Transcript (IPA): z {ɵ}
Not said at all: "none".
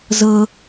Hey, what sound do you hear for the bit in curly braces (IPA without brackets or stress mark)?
ɤ